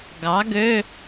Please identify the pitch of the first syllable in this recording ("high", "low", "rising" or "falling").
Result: rising